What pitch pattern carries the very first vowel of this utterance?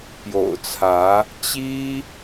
low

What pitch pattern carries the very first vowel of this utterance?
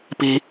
low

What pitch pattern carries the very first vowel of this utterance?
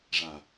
low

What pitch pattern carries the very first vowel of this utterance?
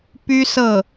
high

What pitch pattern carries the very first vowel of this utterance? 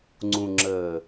low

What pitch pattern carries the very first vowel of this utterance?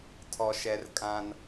low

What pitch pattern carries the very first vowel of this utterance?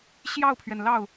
falling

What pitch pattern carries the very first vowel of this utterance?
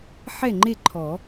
falling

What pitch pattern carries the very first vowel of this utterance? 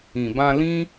low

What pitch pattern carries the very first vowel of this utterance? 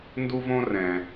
high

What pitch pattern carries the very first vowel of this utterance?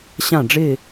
falling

